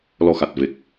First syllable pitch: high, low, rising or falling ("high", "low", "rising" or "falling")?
low